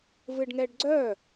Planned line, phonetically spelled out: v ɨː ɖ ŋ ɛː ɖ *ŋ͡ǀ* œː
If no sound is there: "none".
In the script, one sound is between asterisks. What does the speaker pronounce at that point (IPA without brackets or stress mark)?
ɡ͡ǀ